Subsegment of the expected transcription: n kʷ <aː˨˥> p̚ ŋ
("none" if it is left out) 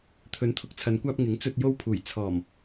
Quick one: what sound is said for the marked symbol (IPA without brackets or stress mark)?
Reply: aː˧